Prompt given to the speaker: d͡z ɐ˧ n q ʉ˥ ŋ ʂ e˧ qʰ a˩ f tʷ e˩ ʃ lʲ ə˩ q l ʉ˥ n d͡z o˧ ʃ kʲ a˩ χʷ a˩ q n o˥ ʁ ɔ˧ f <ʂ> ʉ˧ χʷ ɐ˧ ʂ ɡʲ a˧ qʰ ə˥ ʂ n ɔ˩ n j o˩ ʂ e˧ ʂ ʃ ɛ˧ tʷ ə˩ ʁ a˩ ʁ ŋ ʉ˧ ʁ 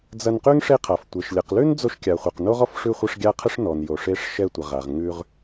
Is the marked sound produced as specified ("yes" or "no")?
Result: yes